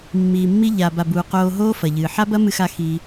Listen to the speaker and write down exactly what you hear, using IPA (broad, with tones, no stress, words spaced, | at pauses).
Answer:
mːiː˨mːi˧ʎa˨ ba˨buː˨ qoː˧ɦoː˦fɐ˨ʎɨː˨ ħa˦bɐ˦mɨ˧xa˧ xi˧